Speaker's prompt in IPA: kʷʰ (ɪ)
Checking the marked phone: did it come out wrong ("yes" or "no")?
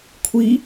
yes